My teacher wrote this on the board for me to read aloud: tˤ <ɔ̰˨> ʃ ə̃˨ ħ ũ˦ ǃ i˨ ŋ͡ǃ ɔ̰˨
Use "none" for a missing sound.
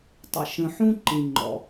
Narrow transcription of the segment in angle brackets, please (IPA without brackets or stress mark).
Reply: ə̰˨